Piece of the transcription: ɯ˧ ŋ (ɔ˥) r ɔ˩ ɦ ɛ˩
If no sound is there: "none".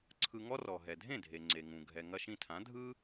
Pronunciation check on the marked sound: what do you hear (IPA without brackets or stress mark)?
ɔ˥